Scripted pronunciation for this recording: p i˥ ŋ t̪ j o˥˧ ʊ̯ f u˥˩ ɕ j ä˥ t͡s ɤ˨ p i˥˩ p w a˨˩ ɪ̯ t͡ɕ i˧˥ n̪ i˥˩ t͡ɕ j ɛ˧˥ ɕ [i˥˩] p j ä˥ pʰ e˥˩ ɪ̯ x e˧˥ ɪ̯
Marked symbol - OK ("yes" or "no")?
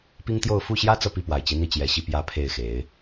yes